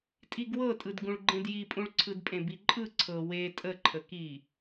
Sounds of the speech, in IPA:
tʼ i ɡ w ɤ tʼ ɯ d ɡ ũ ɭ ɡ͡ǃ ẽ d j i pʼ ũ ɭ ǀʰ ɯ d pʼ ẽ b i ǃʼ ɯ ǀʰ ɤ w e tʼ ə ǃʰ ə k i

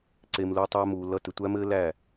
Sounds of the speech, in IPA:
ǀ e˨ m l u˧ tˤ æ˧ m uː˨ l ʌ˧ t ɘ˨ tʷ æ˦ m ɘː˦ l æ˦˨

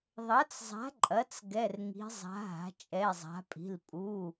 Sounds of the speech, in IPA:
ðˤ ɐ˩˥ t͡s zˤ a̤˩˥ ǃʼ ɐ˩˥ t͡s ɡ ɛ˩˧˩ r ŋ i̤˩˧ zˤ a̤˩˧ ɦ a̤˩˧ t͡ʃʼ ɛ˩˧˩ zˤ a̤˩˧ pʼ i̤˩˧˩ l pʼ u˩˧˩

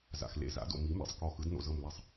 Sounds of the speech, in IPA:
z a̰˩ x l ḛ˧˩ z a̰˨˩˦ d o̰˧˩ m i˨˩˦ m ḛ˩ sˤ k ɔ˧˩ x ɯ˨˩˦ d n o̰˧˩ z ɤ˧˩ m l ɛ˧˩ sˤ

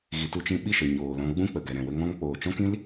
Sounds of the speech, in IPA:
ɣ i˨ t u˧ t͡ʃ ĩ˧ ɓ i˦˨ ʃ ə˨ ɲ oː˨ l ɔ̃˧ ɡ͡b ũ˦ k͡p ə˨ ɡ ɛ˨ ɾ ɛ̃˨ w ə˧ ŋ ɔ̃˧ ŋ k͡p oː˨ t͡ʃ ɔ̃˦ k ĩ˦ l

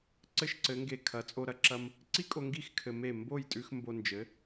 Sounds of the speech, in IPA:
ǀ ɘ˥ ʃ ǀ ɘ˩˥ ŋ ɡ e˧ kʰ ɐ˩˥ t͡sʼ o˧ ɾ ɐ˧ ǁ ɐ˥ m | ǀ i˥ kʼ o˧ ŋ ɡ i˥˩ x kʰ ɘ˧ m e˥˩ m b o˥˩ j tʼ ʉ˧ x m b o˧ n d͡ʒ ɘ˩˥

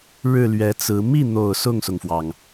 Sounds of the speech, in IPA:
ɻ ɻ̩˥˩ l ɥ ɛ˧˥ t͡s ɹ̩˧˥ m i˥˩ n̪ o˨˩ ʊ̯ s ʊ˥˩ ŋ s ʊ˩ ŋ f w ɑ˩ ŋ

